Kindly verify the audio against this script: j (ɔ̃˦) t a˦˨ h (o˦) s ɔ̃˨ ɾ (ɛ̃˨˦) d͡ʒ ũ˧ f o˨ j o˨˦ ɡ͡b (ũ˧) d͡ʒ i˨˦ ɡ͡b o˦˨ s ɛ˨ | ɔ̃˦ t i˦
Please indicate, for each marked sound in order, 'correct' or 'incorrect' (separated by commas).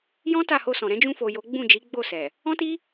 correct, incorrect, correct, incorrect